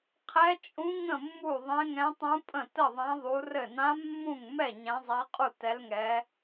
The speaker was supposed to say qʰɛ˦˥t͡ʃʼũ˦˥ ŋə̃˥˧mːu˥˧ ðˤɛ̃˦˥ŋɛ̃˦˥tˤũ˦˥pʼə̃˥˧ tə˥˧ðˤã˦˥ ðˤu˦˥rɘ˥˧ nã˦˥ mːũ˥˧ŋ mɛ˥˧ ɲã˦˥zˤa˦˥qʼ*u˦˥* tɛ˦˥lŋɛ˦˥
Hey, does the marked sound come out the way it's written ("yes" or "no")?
no